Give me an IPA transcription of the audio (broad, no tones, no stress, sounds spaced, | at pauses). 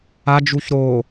a d͡ʒ u ç ɾ o